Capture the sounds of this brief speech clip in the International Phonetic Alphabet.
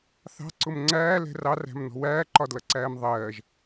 θ ɑ̤ ǀ ʊ m ŋ͡ǀ æː l ɛ̤ r ɑ r æ̤ m n ɔ̤ w æː ǃ ɒ d l ʌ ǀ æː m ðˤ ɜː ʒ

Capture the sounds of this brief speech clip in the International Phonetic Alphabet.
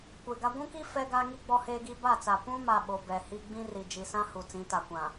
kʷ e˨ ɡ a˦ ɡʷ ũ˦ k i˦ f ɛ˦ ɡ a˦ ŋ i˦ ɡ͡b ɔ˦ h eː˦ ɡ iː˦ b a˦˨ t͡s a˨ p ũ˦ m a˨ ɓ o˨ b ɛ˨ h i˦ ɡ͡b ĩ˦ r i˨ d͡ʒ i˨ s ã˦ h u˨ t͡s ĩ˨˦ t a˨ kʷ ã˨

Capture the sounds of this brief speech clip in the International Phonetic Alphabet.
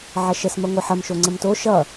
ʕ ɐ ʃ ə s m ɐ ŋʷ ɐ ħ ɐ m ʃ o ŋ͡ǀ ə m t o ʃ ʌ

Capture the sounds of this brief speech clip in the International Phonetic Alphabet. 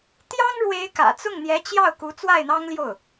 t̪ j ɑ˥ ŋ ɻ w e˧˥ ɪ̯ k ä̰˨˩ t͡s ʊ˥˩ ŋ n̪ j ɛ˧˥ t͡ɕ j ɑ˥˩ ʊ̯ k u˧˥ t͡s w a˥˩ ɪ̯ n̪ ɑ˥ ŋ l j o˥˩ ʊ̯

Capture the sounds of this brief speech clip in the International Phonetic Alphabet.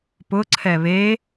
p ʊ ǀʰ ɛ β e

